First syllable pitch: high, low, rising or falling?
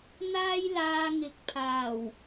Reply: high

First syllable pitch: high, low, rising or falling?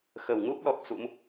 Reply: low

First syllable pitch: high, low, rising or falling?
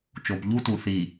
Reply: low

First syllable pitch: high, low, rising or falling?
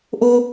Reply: high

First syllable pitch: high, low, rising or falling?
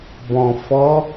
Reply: low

